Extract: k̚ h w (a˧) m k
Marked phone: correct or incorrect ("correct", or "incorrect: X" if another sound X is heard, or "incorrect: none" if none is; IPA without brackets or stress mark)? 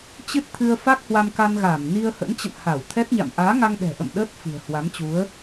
correct